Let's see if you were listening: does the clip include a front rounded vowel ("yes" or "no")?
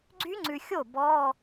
yes